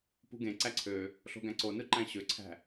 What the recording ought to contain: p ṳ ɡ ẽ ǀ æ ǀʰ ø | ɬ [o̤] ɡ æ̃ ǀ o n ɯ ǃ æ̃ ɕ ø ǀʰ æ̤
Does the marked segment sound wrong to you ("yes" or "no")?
no